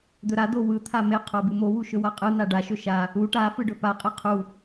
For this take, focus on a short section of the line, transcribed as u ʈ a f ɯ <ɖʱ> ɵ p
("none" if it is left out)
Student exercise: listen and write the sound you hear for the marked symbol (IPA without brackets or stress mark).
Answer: ɖ